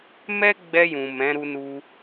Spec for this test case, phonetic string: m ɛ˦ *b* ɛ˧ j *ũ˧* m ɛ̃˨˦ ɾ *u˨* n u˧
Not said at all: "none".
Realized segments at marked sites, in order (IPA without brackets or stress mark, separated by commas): ɡ͡b, ũ˨, u˧